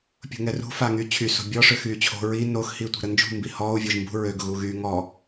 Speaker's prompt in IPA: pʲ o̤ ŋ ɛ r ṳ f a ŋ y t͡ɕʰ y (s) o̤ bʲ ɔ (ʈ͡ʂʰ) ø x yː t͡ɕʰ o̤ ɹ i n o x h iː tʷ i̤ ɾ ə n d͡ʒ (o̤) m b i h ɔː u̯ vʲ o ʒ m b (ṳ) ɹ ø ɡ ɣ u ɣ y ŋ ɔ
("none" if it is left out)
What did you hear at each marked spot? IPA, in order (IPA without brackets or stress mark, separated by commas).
s, ʂ, ṳ, ṳ